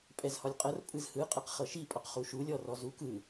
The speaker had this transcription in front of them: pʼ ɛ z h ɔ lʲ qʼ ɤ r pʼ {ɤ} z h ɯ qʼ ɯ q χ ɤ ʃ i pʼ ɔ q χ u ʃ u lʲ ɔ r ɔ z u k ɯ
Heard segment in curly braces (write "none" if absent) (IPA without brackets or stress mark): ɯ